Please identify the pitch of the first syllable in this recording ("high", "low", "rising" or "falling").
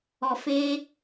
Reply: low